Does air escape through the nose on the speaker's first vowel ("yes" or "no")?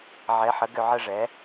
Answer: no